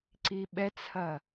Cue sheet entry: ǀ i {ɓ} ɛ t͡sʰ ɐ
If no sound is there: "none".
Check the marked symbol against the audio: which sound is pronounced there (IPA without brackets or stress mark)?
ɓ